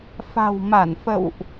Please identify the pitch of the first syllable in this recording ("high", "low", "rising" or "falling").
low